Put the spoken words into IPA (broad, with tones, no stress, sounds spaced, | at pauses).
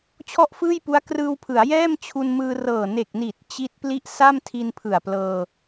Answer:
t͡ɕʰ ɔ˥˩ ʔ f ɯː˥˩ j p u˦˥ a̯ k r ɯː˧ w pʰ ɯ˩˦ a̯ j ɛː˥˩ m t͡ɕʰ u˧ n m ɯː˧ r ɤː˨˩ n e˨˩ k̚ n i˨˩ t̚ t͡ɕ i˦˥ t̚ p l i˥˩ ʔ s a˥˩ m tʰ i˧ n pʰ ɯ˨˩ a̯ p l ɤː˧